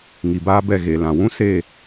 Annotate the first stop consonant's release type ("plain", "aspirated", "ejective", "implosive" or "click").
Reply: plain